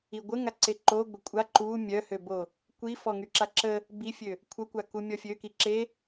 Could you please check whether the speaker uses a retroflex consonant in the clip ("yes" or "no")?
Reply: no